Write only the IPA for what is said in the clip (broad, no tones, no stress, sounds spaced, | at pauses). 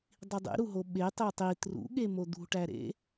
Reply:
dˤ i dˤ ḛ ɾ u ɦ o ɓ e tˤ e tˤ i t r ṵ ɠ e m o d̪ ṳ ʈ æ ɾ ḛ